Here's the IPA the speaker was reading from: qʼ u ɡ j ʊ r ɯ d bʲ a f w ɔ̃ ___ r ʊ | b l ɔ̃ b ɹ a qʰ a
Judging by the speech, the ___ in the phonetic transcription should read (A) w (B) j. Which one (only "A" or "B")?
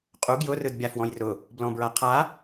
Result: B